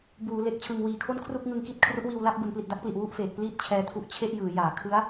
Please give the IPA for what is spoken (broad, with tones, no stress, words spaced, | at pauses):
buː˩˦ le˨˩k̚t͡ɕʰɯ˨˩ŋwiː˨˩kʰo˥˩n kʰru˥˩k̚ŋɯ˧ŋki˦˥t̚ kʰru˦˥ʔwiː˧wla˥˩p̚ bu˩˦npli˨˩t̚da˦˥k̚pli˨˩ʔ wu˥˩ʔfeː˨˩k̚pliː˥˩t̚ t͡ɕʰɛː˧tʰu˦˥ʔ t͡ɕʰe˥˩ʔjɯː˩˦jaː˩˦ kʰɯ˦˥a̯